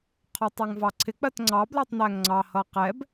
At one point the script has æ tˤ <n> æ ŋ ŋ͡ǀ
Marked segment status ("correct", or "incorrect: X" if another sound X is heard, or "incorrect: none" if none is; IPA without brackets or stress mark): correct